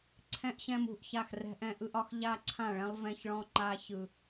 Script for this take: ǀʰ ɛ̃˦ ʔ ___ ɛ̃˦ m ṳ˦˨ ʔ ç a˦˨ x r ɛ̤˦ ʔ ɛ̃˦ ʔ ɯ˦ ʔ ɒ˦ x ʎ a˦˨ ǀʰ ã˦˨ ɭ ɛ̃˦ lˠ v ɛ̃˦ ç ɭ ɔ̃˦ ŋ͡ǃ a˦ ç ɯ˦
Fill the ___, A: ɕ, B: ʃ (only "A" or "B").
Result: A